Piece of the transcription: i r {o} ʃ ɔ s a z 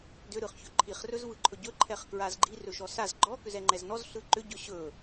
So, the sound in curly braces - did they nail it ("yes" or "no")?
no